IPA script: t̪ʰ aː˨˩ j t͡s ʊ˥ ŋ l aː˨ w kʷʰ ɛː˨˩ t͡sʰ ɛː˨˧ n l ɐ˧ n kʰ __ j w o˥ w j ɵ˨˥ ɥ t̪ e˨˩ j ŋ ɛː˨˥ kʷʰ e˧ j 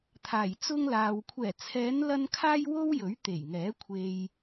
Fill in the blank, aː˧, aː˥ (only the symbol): aː˥